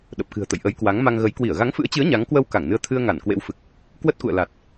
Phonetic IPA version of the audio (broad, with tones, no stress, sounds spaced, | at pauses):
ɗ ə˨˩ p̚ k ɨ̤˨˩ ə̯ t̪ ə̰˧˨ j ʔ ə˨˦ j k w a˨˦ ŋ m a˧ ŋ ɣ ə˨˦ j k w i˧˩ ə̯ ɣ a˨˦ ŋ f ɨ̰˧˥ ə̯ t͡ɕ ɨ˨˦ ə̯ ɲ a˨˦ ŋ k w ə˧ w k a˧˩ ŋ n ɨ˨˦ ə̯ t̪ʰ ɨ˧ ə̯ ŋ a˧˩ n k w ḛ˧˥ w f ɨ˨˩ k̚ | k w ə˦˥ t̚ k ṵ˧˨ ə̯ l a˨˩ t̚